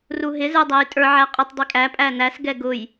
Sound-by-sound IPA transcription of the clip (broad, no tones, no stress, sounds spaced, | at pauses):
r u ɦ ɪ z ə˞ dˤ æ j tʼ ə˞ ʕ æ qʼ ə tˤ dˤ i kʼ æ pʼ æ n æ s ɡ ɛ ɡ ʊ j